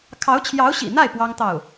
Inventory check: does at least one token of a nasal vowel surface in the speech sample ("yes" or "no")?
no